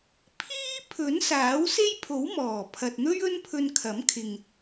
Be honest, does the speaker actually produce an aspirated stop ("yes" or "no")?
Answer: yes